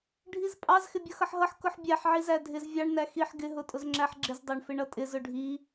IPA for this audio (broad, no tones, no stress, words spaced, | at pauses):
ɖʱizpʼɑz xɪbʲʌxʌħɦʌħ kʊħbʲæħ ʕizædʱɪz vʲɑɳ næxiħ ɡɪ ɦʊtʼʊzŋ͡ǁæħɡ͡ǁɪz dˤɑɳfɪɳʌtʼɪz ʊɖʱi